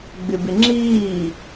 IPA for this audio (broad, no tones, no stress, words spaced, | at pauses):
ɡ͡bɪbɪŋ͡ǁiː